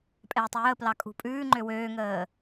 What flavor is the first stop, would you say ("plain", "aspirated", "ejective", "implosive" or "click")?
ejective